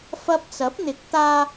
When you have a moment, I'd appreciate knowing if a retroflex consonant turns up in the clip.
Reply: no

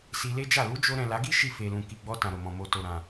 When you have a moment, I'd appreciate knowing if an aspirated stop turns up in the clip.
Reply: no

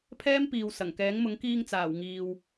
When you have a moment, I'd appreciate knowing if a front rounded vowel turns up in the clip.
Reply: no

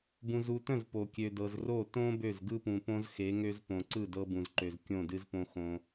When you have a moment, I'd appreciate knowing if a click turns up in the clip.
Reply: yes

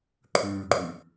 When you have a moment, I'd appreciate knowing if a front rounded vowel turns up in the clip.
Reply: no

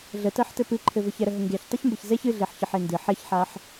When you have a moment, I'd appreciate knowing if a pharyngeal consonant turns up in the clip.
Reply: yes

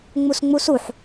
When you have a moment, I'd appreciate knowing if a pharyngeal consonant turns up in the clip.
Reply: yes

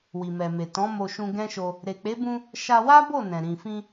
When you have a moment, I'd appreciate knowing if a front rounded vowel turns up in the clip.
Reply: no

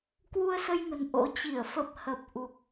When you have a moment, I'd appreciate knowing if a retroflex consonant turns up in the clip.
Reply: no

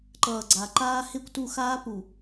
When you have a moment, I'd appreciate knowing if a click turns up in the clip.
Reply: yes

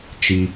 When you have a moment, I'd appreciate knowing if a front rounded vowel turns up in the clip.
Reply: no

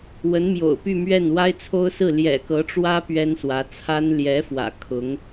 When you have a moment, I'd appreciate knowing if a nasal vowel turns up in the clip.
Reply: no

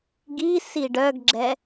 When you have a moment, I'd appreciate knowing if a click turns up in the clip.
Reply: yes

